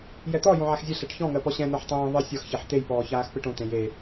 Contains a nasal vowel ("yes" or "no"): yes